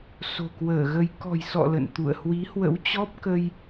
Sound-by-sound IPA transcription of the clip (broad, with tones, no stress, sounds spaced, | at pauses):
s o̤˨˩ k w əː˧˩ ɣ ə˧ j k ɔ̤˨˩ j s ɔ̰˧˨ l ə̰˧˨ n t̪ ṵ˧˨ ə̯ h w i˨˦ h w ə̰˧˥ w t͡ɕ ɔ˦˥ p̚ k ə˧ j